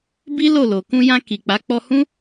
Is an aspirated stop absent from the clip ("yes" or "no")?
yes